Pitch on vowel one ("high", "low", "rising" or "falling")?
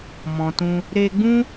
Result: low